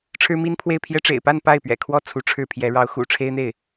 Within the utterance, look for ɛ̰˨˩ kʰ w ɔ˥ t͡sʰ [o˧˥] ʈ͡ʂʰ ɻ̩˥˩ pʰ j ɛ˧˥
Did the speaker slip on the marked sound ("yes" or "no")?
yes